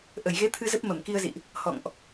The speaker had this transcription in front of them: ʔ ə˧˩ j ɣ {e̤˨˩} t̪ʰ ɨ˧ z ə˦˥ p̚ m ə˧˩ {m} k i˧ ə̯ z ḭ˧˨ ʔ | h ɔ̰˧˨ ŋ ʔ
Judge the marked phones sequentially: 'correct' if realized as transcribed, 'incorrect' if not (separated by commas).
incorrect, correct